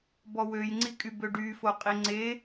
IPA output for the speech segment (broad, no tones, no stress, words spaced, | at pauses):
bɔwøjŋ͡ǀikʼy bøɖyfo qʼiŋ͡ǀe